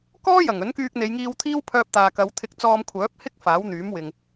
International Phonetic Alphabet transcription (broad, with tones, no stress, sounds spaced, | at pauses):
k ɔː˥ j ɐ˨˩ ŋ ɵ˨˥ n k yː˧ k̚ n̪ e˨˧ j ŋ iː˧ w t̪ʰ iː˥ w pʰ œː˧ p̚ t̪ aː˨ k ɐ˨˧ w t̪ʰ ɪ˧ k̚ t͡s ɔː˧ m kʷʰ œː˨˥ p̚ h ɪ˥ k̚ f aː˨˥ w n̪ yː˨˥ m w ɪ˨ ŋ